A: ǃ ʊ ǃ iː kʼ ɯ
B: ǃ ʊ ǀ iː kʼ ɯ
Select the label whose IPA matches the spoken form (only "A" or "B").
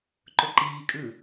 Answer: A